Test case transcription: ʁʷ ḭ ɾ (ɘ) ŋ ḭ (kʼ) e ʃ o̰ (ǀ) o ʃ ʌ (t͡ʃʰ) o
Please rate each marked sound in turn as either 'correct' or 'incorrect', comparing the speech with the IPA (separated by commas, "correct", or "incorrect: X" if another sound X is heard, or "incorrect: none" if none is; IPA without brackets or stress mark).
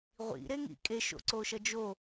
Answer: incorrect: e, correct, correct, incorrect: d͡ʒ